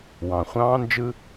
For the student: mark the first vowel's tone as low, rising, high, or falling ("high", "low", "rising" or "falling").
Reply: low